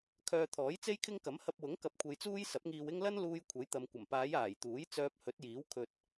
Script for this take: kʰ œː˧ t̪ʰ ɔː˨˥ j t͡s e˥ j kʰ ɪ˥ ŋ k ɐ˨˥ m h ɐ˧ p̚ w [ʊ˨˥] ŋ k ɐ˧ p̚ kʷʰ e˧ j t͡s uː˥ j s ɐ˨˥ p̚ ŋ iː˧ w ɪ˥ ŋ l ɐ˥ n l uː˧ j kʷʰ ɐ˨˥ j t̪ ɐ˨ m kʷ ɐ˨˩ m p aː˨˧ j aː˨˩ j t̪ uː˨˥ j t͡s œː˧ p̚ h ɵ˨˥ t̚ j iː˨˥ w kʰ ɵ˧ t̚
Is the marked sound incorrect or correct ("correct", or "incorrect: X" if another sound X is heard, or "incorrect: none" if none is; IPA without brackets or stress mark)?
correct